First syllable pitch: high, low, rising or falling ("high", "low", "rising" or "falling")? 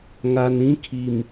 low